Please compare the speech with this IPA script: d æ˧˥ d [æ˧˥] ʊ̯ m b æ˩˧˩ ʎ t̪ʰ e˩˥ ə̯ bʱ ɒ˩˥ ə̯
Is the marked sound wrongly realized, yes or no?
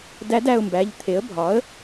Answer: yes